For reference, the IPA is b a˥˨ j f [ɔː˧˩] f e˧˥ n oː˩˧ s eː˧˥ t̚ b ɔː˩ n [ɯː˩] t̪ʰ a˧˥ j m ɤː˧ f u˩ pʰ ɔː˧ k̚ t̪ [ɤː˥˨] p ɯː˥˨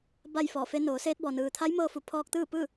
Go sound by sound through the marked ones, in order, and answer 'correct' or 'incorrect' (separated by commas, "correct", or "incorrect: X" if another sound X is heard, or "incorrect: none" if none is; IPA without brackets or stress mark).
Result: correct, correct, incorrect: ɯː˥˨